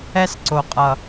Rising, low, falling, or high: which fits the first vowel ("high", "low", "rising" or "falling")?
high